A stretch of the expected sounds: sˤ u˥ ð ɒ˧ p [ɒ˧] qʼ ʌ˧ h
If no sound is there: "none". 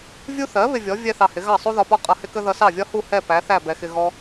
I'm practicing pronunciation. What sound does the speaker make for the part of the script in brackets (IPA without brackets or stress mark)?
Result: ɒ˥